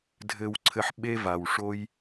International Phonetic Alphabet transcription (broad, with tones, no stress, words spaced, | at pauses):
dʱɘ˧wǀʰɘ˧ħ ɓe˦va˨wʂo˦j